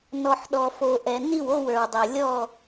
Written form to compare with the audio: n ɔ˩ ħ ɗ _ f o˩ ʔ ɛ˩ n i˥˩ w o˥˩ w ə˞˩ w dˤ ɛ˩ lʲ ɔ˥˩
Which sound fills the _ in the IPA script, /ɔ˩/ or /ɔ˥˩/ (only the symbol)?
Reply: ɔ˩